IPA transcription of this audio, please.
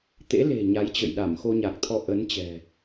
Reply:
t̪ ḛ˧˥ l e̤˨˩ ɲ a˨˦ j t͡ɕ ə̰˧˨ j ɗ a˧˩ m x o˧ ɲ a˨˩ k̚ t̪ʰ ɔ˧ ʔ ə˨˦ n t͡ɕ ɛ̤˨˩

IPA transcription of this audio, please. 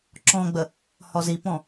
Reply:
ǁ ɔ̃ ɡ͡b ə | h ɔ z i p ɔ̃

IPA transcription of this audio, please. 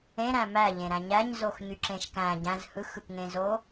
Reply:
ẽ ɾ æ̃ m æ ʎ ẽ ɾ æ̃ ɲ æ ɲ z o x ɲ y ǁ ẽ ʃ k æ̃ ɟ æ̃ z h ɯ x ɯ k ŋ ẽ z o

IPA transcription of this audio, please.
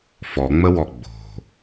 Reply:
f ɔ ŋ͡m ə w ɔ ɡ͡b o̤

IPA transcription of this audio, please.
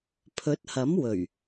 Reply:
pʰ ɵ˨˥ t̚ h ɐ˨˥ m w ɵ˨˩ ɥ

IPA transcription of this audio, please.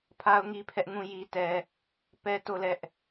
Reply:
pʰ a˦ ʊ̯ ŋ i˦ pʰ ɛ˦ ʔ ŋ ũ˦˨ j i˦ t ɛ˦ | p ɛ˦ t o˦˨ l ɛ˦ ʔ

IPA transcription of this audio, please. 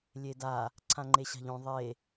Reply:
lʲ e d a | ǀʰ ã ŋ͡ǃ e ɕ a̤ ʎ õ ðˤ e

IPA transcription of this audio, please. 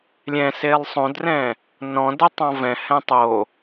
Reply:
lʲ ɛ̃ s e lˠ sˤ õ d r ɛ̃ | n ɔ̃ d ɛ tˤ ɔ̃ v ɛ̃ h ɛ̃ tˤ o

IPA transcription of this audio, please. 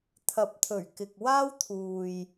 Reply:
t̪ʰ ɐ˨˥ p̚ t̪ʰ ɵ˨˩ ɥ k ɪ˨ k̚ w aː˥ w t̪ʰ uː˨ j

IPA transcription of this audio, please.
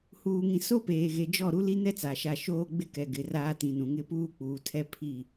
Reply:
h uː˨ ŋ ĩ˨ s o˦ p eː˨ ɣ e˨ d͡ʒ ɔ˦˨ ɾ u˦ l i˦ n ɛ˦ t͡s a˨ ʃ a˦˨ ʃ oː˦ ɡ͡b ɪ˦ k ɛ˨ ɡ ɪ˨ r aː˦ t ĩ˨ n ũ˨ ŋ ɪ˦ p uː˦ k͡p uː˨ tʰ ɛ˦ pʰ i˦˨

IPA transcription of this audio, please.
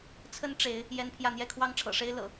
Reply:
t͡sʰ ə˦ n ʈ͡ʂ e˨˦ ɪ̯ | j ɛ˦ n pʰ j ä˥˨ n̪ j ɛ˥˨ kʰ w ɑ˦ ŋ ʈ͡ʂʰ ɤ̰˨˩ ʂ e˦ ɪ̯ l ɤ̰˨˩

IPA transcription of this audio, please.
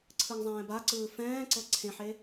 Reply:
ǀʰ ɯ ŋ zˤ ɛ̃ː b a ǀ ɯː f ɛ̃ː ǀ ɤ ǀʰ ẽ ħ e

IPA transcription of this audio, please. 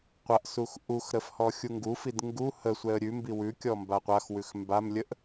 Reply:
qʷ a ʔ s u x ʔ u x ɾ ə f h ɔ xʲ u ŋ ɡ u f i d ŋ ɡ u h ə sʷ ɛ ə̯ ɾʲ ʉ m b i w ʉ kʲ ɔ m b a qʷ a x w ʉ x m b a m lʲ ə ʔ

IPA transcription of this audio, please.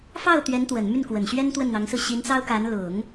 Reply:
f ɑ˥˩ ʊ̯ t̪ ɥ ɛ˧˥ n t̪ w ə˨˩ n m y˥˩ n k w ə˨˩ n ɕ ɥ ɛ˥ n t̪ w ə˥˩ n n̪ ɑ˧˥ ŋ s ɹ̩˥˩ ɕ i˧˥ n t͡s ɑ˥ ʊ̯ k a˧˥ n l ʊ˨˩˦ ŋ

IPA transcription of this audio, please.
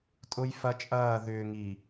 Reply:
tʼ ʊ˦ j f ɐ˦ t͡ʃʼ ɐː˦˨ ð ʏː˨ ŋ i˨

